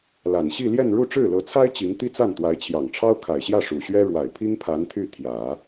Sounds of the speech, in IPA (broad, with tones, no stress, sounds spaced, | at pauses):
l a˨˩ n ɕ i˥˧ l j ɛ˥˧ n ɻ u˥˧ ʈ͡ʂ ɻ̩˥˩ l ɤ˧˥ t͡sʰ a˥ ɪ̯ t͡ɕ i˧˥ ŋ t̪ i˥ t͡s a˥˩ n t̪ w a˧˥ ɪ̯ t͡ɕʰ j ɑ˨˩ ŋ ʈ͡ʂʰ ɑ˥ ʊ̯ kʰ a˨˩ ɪ̯ ɕ j ä˥˩ ʂ u˨˩ ɕ ɥ ɛ˥ ɻ w a˨˩ ɪ̯ pʰ i˥ ŋ pʰ a˧˥ n t̪ʰ y˥˩ t̪ʰ j ä˨˩˦